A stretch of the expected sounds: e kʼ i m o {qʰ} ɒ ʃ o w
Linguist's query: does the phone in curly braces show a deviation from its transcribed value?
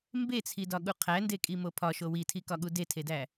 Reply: yes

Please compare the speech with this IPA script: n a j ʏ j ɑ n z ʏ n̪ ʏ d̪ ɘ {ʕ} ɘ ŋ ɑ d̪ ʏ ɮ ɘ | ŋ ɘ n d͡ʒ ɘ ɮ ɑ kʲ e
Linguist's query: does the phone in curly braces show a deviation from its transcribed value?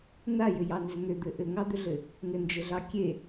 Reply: yes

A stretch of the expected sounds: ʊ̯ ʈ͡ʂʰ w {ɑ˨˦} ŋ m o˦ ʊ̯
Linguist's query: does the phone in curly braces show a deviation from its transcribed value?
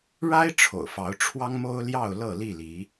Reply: yes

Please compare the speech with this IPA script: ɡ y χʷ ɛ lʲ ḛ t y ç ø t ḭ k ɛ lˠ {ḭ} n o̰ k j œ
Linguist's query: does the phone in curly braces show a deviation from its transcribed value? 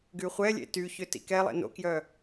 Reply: yes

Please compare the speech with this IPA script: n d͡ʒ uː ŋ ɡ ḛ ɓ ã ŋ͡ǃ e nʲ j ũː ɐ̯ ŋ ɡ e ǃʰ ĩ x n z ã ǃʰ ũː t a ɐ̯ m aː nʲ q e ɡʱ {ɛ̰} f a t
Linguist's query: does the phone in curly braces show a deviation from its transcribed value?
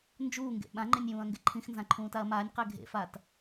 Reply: yes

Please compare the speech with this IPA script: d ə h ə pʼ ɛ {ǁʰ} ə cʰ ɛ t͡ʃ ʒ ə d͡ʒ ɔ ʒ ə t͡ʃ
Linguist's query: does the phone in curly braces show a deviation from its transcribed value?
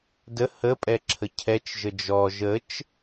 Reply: no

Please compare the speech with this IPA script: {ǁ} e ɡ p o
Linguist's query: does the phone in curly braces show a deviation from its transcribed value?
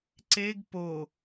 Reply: yes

